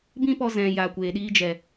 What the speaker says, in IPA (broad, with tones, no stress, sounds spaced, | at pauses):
b ĩ˦ p ɔ˧ z ɛ̃˨ j aː˨ kʷ eː˨ ɗ iː˧ d͡ʒ ɛ˨